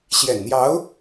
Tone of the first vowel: low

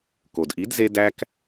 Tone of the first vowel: low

